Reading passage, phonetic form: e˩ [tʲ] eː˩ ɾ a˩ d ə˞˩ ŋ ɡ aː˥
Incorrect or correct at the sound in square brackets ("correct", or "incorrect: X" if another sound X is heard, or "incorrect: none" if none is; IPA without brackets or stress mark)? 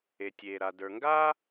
correct